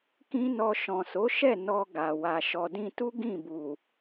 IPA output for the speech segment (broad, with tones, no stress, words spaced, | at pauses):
kĩ˦nɔ˧ ʃɔ̃˨so˨˦ʃɛ˦˨ nɔ˧ ɡa˨ wa˨ʃɔ˨dĩ˧tu˦ ɡĩ˦˨bu˨